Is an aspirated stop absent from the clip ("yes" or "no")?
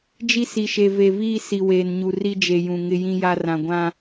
yes